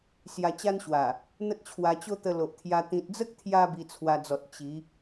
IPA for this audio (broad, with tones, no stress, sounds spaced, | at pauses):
s j a˧ t͡ɕ a˦ n ɕ w a˨˩ | n̪ ə˦ t̚ t͡ɕʰ w a˧ t͡ɕ o˦ t̪ ə˧ l o˨ ʔ t̪ʰ j a˧ t̪ ĩ˨ t̚ d͡z ə˦ k̚ t̪ʰ j a˧ b i˧ t͡sʰ w a˧ d͡z ɔ˨ t̚ t͡ɕ i˨˦